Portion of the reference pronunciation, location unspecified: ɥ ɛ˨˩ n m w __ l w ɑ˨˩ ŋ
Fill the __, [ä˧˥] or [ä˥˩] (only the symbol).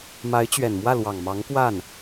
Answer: ä˥˩